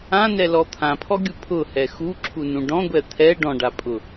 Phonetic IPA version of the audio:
ãnɛlɔ t̪ʰãpʰɔɡʲu pʰʊhɛ xuǁʰunũ ɖɔ̃ɡʷɛ t̪ʰɛ ɖɔ̃ɖapʼʊ

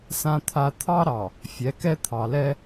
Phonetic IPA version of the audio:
sã˦t̪ʰa˦ t̪ʰɑ˦ɾɑ˨ | fʲɛ˨˦kɛ˦ t̪ʰɑ˨lɛ˦

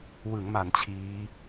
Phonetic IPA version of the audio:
wɯ˩˦ŋma˩˦n t͡ɕʰiː˦˥

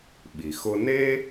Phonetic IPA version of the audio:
ɓi˩xʊ˥ ne˥

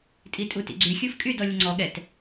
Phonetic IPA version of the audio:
tʼitʼutḭɡ͡ǀy xʲufkʼyd ɔlʲəŋ͡ǀɔ ɠɛt

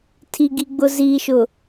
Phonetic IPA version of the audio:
tʰi˨ɡi˨ ɡ͡bʊ˨ziː˨ʃʊ˨

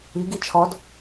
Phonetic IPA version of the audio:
iɡi t͡ʃʰɔd

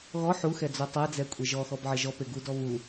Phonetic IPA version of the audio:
ɣɔ ħuxɛ d͡zotˤɛd͡zɛ kʷʼeʒɔxɔb ʕeʒɔpe ɡudɔ βu

